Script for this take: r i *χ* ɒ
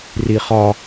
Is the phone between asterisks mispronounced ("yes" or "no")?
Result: no